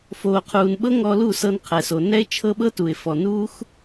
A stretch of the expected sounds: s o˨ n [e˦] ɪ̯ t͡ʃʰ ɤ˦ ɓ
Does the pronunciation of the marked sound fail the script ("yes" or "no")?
yes